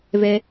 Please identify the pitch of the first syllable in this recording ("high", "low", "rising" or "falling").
high